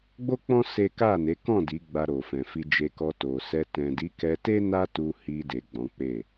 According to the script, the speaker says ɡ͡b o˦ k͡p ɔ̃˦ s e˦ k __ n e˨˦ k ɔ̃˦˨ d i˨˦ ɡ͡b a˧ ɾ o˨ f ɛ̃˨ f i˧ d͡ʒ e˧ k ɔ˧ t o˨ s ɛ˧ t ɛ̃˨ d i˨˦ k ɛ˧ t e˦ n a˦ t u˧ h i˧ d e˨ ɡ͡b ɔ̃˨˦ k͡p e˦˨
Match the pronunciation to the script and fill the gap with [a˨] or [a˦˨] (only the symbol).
a˦˨